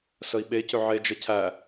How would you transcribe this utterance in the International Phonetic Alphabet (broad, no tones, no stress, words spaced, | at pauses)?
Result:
səi̯ɓecʏ ʕed͡ʒə cʰæ